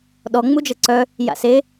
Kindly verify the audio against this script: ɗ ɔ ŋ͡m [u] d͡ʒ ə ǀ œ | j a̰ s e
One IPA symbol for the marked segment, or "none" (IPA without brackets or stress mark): u